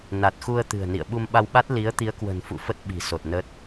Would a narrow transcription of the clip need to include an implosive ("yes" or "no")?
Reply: yes